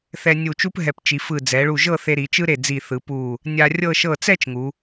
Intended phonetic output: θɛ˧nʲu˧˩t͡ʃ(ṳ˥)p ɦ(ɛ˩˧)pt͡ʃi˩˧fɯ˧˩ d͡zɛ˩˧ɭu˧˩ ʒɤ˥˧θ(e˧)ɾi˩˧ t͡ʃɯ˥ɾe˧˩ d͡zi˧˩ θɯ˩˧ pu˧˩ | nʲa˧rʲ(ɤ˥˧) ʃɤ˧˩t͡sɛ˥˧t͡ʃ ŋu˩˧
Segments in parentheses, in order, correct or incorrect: incorrect, incorrect, correct, correct

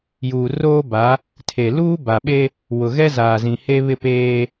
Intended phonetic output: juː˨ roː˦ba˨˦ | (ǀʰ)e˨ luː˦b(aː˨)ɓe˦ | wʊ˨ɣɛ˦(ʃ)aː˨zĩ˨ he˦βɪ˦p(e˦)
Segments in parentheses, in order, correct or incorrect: incorrect, incorrect, incorrect, incorrect

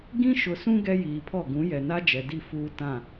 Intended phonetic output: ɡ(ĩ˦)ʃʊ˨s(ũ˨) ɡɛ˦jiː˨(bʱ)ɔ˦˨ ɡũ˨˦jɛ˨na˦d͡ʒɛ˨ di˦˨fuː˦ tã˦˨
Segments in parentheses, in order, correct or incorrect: correct, incorrect, incorrect

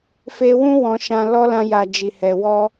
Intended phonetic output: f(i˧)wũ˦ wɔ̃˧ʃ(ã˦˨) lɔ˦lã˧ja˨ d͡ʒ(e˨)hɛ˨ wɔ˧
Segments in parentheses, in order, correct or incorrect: incorrect, incorrect, incorrect

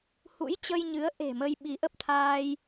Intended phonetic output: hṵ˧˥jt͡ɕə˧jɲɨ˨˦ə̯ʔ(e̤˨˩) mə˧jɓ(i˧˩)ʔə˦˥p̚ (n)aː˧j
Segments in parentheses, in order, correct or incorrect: correct, incorrect, incorrect

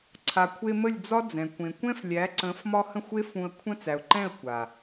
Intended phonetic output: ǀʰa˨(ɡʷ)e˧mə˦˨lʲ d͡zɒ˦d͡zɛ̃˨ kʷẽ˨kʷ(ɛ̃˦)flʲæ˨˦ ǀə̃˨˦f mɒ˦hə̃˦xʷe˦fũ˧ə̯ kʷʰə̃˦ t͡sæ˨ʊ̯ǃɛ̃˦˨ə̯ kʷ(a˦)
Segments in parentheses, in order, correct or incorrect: incorrect, correct, incorrect

